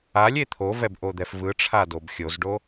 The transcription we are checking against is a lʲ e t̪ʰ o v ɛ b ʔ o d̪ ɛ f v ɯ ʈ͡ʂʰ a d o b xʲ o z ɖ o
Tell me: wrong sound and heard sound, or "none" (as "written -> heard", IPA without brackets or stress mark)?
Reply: none